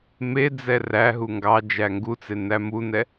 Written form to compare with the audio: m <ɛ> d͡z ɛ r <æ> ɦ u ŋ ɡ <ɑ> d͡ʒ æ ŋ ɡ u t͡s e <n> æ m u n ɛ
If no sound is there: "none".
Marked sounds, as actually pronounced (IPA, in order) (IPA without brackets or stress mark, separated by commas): e, æ, ɑ, n